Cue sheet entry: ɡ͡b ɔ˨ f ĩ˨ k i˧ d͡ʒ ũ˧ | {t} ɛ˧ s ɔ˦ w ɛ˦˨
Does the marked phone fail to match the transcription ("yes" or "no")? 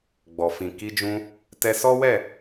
no